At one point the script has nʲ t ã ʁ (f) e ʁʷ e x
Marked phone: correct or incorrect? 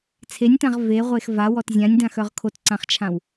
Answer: incorrect